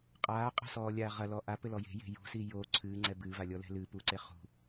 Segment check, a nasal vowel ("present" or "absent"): absent